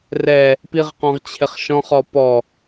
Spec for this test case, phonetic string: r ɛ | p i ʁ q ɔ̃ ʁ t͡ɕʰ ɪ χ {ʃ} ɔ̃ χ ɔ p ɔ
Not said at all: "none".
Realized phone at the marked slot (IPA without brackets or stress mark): ʃ